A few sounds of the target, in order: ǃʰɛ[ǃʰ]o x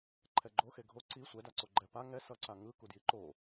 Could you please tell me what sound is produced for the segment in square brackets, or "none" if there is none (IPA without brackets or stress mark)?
ɡ͡ǃ